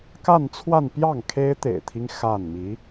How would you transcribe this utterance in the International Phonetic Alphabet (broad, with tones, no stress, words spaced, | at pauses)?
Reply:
ka˥˧nt͡sʰwa˥˧npjɑ˥˩ŋ kʰe˥ɪ̯ t̪ḛ˨˩ɪ̯t̪ʰi˦ŋ xa˥˩nmi˧˥